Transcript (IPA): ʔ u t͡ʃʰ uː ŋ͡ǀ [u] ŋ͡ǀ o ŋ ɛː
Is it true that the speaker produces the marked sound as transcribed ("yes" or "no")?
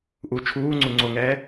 yes